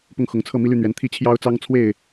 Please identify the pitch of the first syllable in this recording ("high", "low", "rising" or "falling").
falling